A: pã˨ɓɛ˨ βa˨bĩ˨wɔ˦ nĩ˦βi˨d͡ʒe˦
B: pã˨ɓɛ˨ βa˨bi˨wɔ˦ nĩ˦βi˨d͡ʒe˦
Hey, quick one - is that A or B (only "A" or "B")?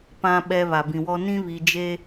A